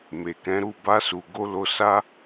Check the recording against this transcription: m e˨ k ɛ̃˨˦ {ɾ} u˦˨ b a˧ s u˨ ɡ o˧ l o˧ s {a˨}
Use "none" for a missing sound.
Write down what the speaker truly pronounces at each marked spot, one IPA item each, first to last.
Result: ɾ, a˦

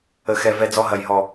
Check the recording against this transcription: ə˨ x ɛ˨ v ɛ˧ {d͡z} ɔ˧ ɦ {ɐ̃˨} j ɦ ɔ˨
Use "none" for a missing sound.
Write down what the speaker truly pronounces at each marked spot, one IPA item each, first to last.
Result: d͡z, ɐ˨

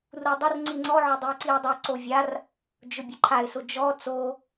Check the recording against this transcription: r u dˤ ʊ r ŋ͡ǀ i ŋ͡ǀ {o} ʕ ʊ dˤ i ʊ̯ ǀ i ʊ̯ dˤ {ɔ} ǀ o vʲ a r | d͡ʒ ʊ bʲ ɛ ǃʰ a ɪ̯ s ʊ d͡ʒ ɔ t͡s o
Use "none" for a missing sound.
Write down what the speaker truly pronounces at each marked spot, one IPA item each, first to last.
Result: ɔ, ʊ

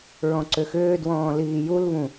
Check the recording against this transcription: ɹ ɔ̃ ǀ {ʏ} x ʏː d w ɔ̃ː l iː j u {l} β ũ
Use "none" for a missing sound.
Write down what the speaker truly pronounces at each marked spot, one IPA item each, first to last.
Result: ʏ, l

